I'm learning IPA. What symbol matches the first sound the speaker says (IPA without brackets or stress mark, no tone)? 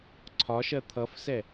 ǀʰ